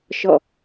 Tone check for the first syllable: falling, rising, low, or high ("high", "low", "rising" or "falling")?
falling